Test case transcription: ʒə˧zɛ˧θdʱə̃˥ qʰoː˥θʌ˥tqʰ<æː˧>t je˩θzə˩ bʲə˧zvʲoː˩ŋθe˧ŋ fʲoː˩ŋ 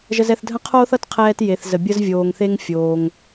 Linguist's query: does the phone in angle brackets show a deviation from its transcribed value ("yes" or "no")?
yes